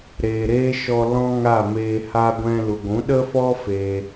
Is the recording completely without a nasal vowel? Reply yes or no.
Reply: no